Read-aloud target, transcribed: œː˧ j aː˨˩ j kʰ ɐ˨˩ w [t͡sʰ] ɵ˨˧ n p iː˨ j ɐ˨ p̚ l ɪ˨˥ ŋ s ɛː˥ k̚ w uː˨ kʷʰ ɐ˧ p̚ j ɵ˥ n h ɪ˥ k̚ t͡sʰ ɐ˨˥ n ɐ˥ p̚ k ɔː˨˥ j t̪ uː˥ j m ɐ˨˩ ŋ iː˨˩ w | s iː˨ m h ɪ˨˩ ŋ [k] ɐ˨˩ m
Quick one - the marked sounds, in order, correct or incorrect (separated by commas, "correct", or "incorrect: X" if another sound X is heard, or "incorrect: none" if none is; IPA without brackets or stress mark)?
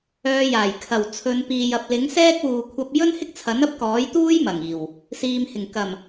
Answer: correct, correct